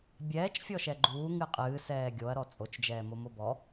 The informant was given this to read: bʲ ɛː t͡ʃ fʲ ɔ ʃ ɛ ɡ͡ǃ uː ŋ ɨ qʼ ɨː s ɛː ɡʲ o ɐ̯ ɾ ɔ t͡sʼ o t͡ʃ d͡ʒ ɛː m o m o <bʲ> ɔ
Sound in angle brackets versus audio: incorrect: b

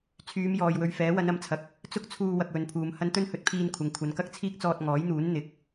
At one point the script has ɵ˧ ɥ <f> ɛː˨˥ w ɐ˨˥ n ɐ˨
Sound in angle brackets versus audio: correct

